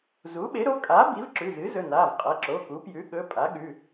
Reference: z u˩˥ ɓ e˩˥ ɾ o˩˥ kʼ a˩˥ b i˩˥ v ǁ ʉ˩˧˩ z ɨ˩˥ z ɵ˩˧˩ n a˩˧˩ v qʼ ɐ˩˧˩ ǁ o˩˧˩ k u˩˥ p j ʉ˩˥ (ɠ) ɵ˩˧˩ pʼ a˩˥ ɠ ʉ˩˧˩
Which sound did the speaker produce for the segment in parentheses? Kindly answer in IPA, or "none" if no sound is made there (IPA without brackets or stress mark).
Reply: ɠ